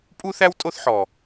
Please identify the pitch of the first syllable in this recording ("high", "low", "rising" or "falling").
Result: high